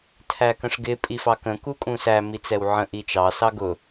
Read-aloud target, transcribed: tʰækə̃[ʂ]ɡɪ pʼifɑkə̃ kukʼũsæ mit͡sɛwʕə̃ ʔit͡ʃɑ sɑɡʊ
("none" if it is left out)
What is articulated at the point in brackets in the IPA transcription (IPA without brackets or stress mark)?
ʂ